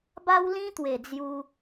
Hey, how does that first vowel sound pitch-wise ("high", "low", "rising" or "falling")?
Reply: high